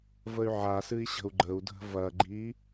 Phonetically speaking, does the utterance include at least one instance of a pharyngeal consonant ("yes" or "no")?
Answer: yes